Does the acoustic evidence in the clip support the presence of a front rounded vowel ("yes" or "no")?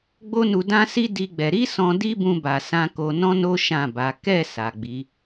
no